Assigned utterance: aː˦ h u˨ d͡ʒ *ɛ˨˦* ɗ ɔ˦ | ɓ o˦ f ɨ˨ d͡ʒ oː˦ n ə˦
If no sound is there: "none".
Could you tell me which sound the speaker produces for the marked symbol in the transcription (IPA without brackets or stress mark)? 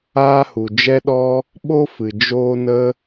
ɛ˦